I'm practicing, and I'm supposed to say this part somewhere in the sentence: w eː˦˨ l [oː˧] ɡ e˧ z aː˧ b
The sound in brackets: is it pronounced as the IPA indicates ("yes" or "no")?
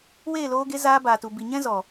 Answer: yes